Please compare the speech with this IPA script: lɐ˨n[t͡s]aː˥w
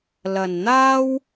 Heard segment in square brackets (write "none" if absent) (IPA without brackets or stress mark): n̪